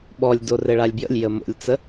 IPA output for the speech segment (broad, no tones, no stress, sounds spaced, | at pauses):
ɓ ɔ lʲ d o r ɘ ɭ a lʲ b j ə̰ lʲ j ə m o̰ lʲ t͡s ə